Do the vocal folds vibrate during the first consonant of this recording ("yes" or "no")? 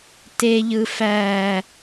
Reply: no